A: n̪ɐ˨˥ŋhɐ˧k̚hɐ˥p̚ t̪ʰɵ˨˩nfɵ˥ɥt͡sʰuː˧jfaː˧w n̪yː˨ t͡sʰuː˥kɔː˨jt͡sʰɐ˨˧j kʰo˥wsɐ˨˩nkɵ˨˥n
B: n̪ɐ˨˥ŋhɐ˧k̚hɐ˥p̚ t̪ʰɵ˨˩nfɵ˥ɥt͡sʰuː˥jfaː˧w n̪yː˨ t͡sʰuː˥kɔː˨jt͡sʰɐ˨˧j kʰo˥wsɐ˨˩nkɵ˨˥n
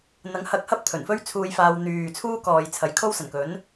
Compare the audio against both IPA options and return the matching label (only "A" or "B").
A